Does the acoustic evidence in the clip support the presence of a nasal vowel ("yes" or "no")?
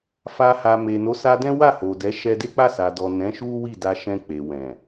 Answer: yes